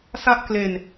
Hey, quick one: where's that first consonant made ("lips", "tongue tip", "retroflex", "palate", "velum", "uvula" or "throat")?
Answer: tongue tip